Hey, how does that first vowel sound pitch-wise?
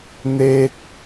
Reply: high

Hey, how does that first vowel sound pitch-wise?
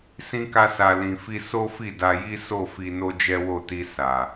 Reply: high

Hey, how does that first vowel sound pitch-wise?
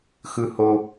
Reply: low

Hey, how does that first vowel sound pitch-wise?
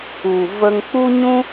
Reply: low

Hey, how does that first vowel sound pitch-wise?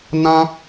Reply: high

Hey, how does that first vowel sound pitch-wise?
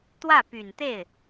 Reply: falling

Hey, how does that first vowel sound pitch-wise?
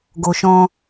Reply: low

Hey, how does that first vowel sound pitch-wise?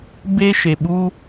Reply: high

